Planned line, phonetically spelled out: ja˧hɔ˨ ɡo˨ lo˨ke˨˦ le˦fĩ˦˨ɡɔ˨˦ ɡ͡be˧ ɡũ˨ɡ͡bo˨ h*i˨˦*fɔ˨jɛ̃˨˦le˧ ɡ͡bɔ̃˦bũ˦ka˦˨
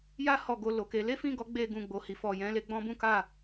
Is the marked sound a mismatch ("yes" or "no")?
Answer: yes